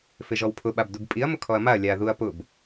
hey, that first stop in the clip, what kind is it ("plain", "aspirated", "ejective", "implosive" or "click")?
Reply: aspirated